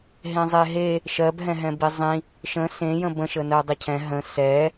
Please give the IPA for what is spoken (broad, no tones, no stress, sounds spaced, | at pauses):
ɦ ẽ zˤ e ɦ e | ʃ ɜ b ɦ ɛ̃ ɦ ɛ̃ b i zˤ ĩ | ʃ ə̃ s ẽ j ə̃ b ə̃ ʃ ə n ɜ dˤ i cʰ ɛ̃ ɦ ə̃ s ɛ